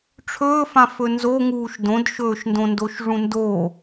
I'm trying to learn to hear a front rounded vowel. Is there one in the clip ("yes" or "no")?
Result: no